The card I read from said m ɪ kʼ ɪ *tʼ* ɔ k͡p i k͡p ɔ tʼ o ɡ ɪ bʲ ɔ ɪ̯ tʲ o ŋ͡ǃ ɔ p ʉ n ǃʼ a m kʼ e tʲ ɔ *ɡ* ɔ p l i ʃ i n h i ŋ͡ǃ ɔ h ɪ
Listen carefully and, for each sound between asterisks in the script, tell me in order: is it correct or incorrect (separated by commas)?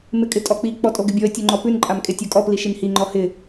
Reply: correct, incorrect